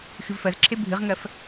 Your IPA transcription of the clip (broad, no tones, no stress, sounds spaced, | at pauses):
x ɨ v f ɜ z ǁʰ e bʱ ɨ ʁ ŋ ɜ f